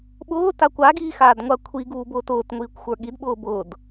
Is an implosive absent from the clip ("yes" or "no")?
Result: no